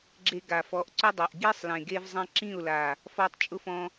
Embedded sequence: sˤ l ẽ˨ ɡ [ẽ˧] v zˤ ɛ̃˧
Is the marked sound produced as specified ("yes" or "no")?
no